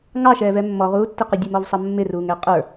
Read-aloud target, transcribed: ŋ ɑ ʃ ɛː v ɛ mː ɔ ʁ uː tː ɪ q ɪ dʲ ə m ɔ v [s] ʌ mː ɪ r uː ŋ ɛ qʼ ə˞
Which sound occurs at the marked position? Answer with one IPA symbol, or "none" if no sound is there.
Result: sˤ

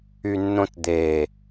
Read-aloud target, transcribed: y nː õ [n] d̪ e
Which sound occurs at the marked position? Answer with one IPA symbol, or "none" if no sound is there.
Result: t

